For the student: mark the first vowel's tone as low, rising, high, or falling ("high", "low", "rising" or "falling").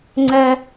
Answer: high